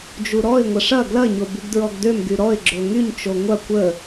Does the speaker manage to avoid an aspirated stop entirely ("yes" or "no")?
yes